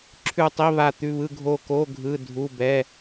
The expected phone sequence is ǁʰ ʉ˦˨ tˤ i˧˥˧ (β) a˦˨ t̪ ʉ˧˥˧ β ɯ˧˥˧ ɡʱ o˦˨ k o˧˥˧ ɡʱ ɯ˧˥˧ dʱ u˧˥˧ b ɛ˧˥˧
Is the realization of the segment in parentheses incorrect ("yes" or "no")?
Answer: no